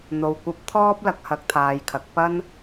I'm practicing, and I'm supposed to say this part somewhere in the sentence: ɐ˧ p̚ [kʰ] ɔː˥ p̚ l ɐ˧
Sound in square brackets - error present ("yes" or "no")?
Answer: yes